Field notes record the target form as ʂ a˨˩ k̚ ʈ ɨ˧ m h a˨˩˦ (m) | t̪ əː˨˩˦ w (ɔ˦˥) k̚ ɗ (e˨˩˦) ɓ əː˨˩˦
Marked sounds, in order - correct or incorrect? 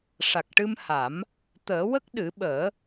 correct, incorrect: ə˦˥, incorrect: ɨ˨˩˦

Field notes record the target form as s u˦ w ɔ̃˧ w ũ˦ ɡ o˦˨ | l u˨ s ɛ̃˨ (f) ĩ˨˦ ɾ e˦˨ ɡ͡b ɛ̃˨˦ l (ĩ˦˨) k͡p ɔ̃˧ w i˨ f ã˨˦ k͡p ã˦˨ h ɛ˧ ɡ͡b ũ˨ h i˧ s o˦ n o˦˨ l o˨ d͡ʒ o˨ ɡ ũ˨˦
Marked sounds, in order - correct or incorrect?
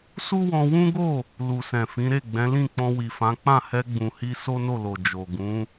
correct, correct

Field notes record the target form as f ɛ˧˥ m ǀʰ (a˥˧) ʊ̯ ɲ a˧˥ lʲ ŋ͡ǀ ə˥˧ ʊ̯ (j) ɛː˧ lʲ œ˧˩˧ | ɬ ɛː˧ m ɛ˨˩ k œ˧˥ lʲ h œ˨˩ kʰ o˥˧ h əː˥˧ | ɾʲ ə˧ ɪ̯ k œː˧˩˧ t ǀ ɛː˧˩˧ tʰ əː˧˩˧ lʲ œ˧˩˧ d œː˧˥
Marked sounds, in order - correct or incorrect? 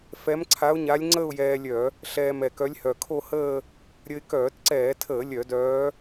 incorrect: a˧˥, correct

